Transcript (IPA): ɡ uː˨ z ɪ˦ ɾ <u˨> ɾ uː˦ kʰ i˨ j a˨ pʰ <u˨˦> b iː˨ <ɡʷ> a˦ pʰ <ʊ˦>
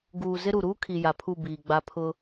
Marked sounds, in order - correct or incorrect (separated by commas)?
correct, incorrect, incorrect, correct